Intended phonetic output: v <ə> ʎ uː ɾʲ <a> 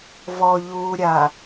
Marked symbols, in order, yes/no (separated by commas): no, yes